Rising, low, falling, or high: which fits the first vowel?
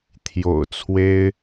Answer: low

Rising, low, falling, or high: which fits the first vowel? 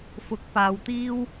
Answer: rising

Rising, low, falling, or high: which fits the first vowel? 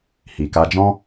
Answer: low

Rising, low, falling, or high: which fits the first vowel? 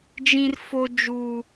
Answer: high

